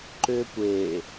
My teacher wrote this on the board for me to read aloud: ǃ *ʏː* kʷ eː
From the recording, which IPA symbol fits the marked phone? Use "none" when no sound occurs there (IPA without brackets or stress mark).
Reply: ʏː